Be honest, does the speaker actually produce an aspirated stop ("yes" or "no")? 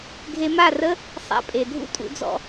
no